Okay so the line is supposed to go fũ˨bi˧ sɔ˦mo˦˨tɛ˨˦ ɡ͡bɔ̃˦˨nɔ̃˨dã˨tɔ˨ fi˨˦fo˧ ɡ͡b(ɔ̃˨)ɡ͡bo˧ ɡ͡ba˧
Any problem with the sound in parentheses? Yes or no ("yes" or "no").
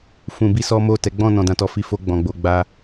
no